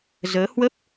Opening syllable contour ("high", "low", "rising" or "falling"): rising